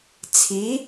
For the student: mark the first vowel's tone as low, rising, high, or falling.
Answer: rising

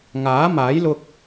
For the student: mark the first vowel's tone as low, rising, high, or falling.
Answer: rising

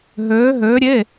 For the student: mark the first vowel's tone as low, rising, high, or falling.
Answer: rising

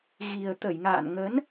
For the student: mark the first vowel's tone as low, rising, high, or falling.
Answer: low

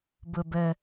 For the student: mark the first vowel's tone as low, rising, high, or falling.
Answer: low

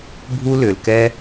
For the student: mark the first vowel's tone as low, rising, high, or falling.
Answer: high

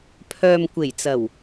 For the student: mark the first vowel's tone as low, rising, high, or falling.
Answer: low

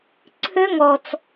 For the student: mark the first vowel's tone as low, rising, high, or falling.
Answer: high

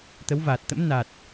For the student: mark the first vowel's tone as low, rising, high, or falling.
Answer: rising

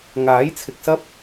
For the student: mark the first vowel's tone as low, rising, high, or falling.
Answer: rising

